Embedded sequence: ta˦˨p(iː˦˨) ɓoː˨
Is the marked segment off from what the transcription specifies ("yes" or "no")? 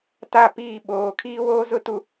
no